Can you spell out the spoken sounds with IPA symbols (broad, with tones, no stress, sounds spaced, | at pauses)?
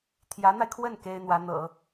t̪ʰ j ä˧˥ n̪ a˧ ɪ̯ kʰ w ə˥˩ n k e˥ ɪ̯ n̪ w ä˧˥ n̪ ɤ̰˨˩˦